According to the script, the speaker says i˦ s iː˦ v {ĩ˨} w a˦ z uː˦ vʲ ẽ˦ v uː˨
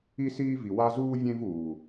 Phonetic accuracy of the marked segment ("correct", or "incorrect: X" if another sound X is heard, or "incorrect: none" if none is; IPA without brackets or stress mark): incorrect: i˨